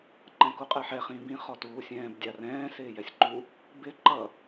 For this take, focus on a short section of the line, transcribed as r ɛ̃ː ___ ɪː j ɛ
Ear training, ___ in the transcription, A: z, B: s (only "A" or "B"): B